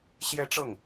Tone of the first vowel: high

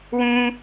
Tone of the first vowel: high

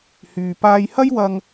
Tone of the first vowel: low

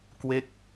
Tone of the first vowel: falling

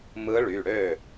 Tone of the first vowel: rising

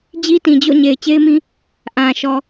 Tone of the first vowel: high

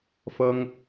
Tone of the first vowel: high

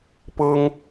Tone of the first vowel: high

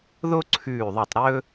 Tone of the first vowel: high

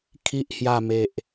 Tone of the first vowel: low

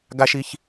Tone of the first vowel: high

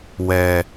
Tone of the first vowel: low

